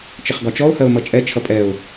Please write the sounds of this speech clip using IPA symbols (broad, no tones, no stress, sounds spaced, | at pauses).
t͡ʃ ɪ χ ɡ ɒ t͡ʃ ɔ ʊ̯ h ɜ ʊ̯ m ʌ t͡ʃʼ ɛ t͡ʃʰ ʌ pʼ ɛ ʊ̯